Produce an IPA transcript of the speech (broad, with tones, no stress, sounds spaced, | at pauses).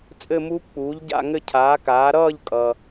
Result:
t͡sʼ ɘ˥˧ m uː˦˥ p k͡p uː˩˥ ʎ ɟ a̰˥˧ ŋ ɘ˥˧ cʰ aː˩˥ k aː˩˥ ɾ ʌː˥˧ ʎ kʼ ʌ˩